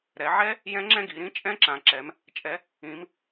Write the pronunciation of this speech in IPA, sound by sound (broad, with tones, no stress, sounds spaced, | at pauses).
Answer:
ɾ ɛ˩˧ ʕ ɛ˦˥ | j ɛ̃˦˥ ŋ͡ǁ ɛ̃˥˧ ɡ i˩˧ ɾ ĩ˦˥ t͡ʃʼ ɛ̃˦˥ ǁ ã˩˧ ǁ ɛ˩˧ m | t͡ʃʼ ɛ˩˧ | ĩ˩˧ m